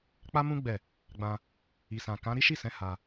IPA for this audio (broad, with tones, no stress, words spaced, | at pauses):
k͡pa˦mũ˦ ɡ͡bɛ˦˨ | ɡ͡bã˧ | i˨sã˨ kã˨˦ ɾi˦ʃi˦˨sɛ̃˨˦ ha˧